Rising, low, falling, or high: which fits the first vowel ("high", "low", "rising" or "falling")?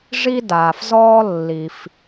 high